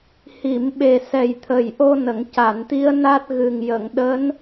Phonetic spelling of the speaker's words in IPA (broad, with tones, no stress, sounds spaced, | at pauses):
h i˨˩˨ m ɓ e˨˩ s ɛ˨˩ j t̪ʰ ə˨˩ j ʔ o˧ n ə˨˩˨ ŋ c a˨˩˨ n t̪ i˧˥ ə̯ n a˦˥ t̚ ɣ ɨ˨˩ ŋ j ə˨˩˨ ŋ ɗ əː˧˥ n